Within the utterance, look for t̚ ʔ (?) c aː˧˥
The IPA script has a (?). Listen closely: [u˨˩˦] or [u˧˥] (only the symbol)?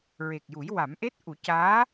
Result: u˨˩˦